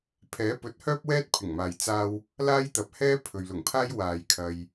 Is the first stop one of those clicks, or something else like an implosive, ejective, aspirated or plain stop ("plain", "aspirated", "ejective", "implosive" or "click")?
aspirated